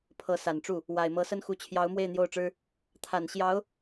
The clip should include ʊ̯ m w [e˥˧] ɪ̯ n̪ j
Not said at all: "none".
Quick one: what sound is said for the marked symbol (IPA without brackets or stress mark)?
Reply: e˥˧